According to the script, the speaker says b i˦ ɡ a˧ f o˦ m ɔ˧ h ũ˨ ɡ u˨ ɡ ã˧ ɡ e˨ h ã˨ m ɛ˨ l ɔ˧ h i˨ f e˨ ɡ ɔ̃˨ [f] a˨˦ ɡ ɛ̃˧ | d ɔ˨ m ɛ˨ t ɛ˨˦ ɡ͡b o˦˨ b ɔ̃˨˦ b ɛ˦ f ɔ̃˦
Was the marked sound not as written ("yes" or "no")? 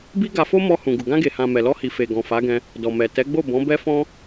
no